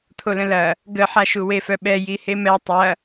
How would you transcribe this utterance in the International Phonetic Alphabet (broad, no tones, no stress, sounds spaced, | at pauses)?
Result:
t̪ʰ o l ə̃ l ɐ | ɡ ə ħ a ʃ u w e f œ ɓ ɛ j i h e m ɛ tˤ ɐ